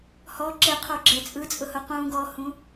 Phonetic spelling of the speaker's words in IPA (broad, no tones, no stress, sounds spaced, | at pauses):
h ɔ ǁ e qʰ o ɡ͡ǁ ɛ t͡sʼ ɯ t͡sʼ ʊ h ʊ q ũ ɡ ɔ h ũ